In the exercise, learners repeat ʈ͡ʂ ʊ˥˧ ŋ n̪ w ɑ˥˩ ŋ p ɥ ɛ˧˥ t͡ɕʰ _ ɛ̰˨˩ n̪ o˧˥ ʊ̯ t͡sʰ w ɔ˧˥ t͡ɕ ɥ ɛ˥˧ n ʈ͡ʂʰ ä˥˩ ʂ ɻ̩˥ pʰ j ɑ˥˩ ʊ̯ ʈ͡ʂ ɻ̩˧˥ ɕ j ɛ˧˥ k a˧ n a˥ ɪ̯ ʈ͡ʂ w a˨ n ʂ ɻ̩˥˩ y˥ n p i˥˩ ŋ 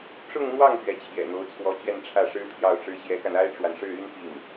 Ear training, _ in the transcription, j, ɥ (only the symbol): j